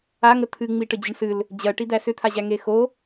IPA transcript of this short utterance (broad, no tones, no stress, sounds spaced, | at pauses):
a ŋ ə t̪ʰ ɨ ŋ͡m i ʈ ə d͡ʑ ə ɳ s ɨ l | d͡ʑ ɜ ʈ i d̪ æ s ʏ t̪ʰ a ʑ æ ŋ e x o